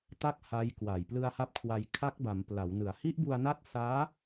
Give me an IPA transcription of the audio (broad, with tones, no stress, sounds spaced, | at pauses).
t a˥˩ k̚ h a˦˥ j k w a˨˩ j p l ɯ˧ a̯ h a˦˥ p̚ kʰ w a˧ j kʰ a˦˥ k̚ b a˩˦ m p l a˩˦ w n ɯ˩˦ a̯ h i˦˥ ʔ b u˧ a̯ n a˦˥ t̚ s aː˦˥